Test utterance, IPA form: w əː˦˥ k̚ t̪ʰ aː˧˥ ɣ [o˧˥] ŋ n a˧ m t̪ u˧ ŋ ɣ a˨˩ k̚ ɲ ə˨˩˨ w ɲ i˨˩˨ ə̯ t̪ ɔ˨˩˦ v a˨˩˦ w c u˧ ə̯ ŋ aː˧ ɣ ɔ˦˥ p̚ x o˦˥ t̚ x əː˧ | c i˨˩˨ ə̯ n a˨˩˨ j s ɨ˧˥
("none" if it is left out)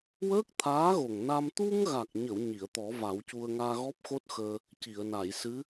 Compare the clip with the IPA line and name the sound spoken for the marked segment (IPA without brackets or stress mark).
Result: o˨˩